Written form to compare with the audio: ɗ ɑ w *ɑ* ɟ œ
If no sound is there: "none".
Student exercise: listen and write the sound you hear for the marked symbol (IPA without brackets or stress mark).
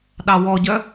ɔ